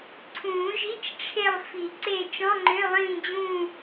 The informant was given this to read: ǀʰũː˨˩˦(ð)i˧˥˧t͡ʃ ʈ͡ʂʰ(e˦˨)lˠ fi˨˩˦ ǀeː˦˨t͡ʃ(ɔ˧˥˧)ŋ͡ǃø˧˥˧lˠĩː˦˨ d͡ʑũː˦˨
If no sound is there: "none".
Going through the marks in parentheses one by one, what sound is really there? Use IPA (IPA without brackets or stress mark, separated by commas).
ʒ, e˦˨, ɔ̃˧˥˧